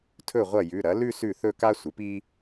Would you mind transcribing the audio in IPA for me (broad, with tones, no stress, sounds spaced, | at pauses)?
tʰ ɵ˥˩ ʁʷ ɐ˥˩ j ʉ˩˧˩ ɾ ɐ˩˥ l ʉ˥˧ s ʉ˥˩ θ ɵ˥˧ k a˥ sʷ ɨ˩˥ p i˥